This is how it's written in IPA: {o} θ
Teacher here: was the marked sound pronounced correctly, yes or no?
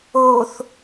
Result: yes